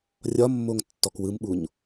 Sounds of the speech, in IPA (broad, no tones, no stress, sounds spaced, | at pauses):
rʲ ɒ mː o ŋ tː ɔ k w ɯ m ɓ u ɲ